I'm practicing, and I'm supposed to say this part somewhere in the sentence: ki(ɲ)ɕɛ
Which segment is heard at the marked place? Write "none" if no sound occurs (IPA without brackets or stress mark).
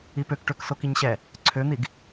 ɲ